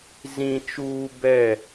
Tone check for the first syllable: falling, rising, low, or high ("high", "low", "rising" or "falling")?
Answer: high